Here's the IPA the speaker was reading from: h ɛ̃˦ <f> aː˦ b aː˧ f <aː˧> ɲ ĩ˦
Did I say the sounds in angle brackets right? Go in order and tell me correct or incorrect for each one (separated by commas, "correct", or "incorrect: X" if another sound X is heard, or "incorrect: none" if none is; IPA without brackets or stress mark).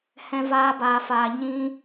incorrect: v, correct